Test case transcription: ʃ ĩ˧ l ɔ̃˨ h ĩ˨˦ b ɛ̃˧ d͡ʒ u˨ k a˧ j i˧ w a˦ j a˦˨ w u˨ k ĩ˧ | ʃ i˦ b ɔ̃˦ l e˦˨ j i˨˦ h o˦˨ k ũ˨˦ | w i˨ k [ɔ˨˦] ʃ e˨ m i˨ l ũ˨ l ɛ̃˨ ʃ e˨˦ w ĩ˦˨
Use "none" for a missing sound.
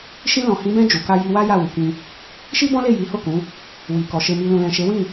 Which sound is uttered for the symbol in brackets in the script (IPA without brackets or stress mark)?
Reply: ɔ˨